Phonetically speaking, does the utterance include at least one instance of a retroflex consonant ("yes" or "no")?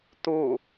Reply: no